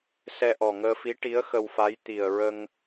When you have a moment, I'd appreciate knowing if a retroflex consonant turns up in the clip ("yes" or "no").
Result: yes